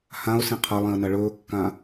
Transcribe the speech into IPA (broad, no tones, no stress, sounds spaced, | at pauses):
h ã ʊ̯ s ĩ qʰ ɐ lˠ ĩ ə̯ n ɐ ɭ ɵː kː ã